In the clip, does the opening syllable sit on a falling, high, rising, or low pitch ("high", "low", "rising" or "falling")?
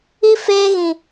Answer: high